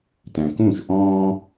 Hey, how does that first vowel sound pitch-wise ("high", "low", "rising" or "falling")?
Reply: low